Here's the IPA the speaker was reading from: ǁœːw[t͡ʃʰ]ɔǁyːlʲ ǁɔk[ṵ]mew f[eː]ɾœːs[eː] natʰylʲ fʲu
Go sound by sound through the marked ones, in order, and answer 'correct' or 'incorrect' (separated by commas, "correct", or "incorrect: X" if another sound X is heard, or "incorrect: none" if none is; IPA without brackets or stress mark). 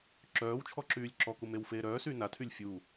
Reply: correct, incorrect: u, correct, incorrect: yː